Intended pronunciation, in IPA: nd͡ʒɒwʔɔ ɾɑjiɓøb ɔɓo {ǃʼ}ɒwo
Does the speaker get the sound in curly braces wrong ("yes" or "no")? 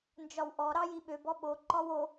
yes